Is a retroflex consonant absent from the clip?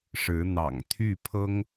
no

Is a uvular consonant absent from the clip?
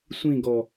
yes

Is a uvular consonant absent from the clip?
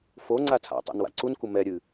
yes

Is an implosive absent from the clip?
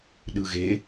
no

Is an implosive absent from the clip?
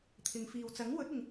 yes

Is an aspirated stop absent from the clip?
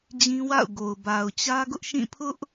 no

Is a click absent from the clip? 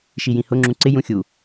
no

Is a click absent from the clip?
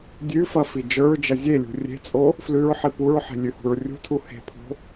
yes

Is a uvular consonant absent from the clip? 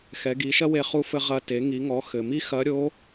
no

